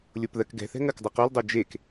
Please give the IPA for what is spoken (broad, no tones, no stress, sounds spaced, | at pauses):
lʲ o p ð ɜ k ɡ ɛ̤ θ ɛ̤ ŋ ɜ k dˤ ə q o l dˤ o d͡ʒ e k